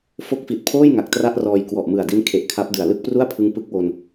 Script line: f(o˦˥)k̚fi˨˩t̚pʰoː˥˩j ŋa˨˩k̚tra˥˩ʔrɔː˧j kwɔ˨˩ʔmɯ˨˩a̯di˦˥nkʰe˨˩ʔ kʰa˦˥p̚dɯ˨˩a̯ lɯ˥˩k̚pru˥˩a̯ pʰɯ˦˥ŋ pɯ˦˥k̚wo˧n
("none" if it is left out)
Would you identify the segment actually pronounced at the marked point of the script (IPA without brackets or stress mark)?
o˦˥